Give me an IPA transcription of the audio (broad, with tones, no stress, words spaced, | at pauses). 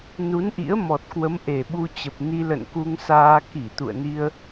nu˨˦nʔḭ˧˥ə̯ mɔ˨˩t̚kwə˨˦m ʔe˨˩ɓu˧t͡ɕə˨˩p̚ ni˧lə̰˧˨nku˧ŋsaː˧ ki˧˩ t̪ṵ˧˨ə̯ni˧ə̯